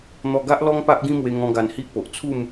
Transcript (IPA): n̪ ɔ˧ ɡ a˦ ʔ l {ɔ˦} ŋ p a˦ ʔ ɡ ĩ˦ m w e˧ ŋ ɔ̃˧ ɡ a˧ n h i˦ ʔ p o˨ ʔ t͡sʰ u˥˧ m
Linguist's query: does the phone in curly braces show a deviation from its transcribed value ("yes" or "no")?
no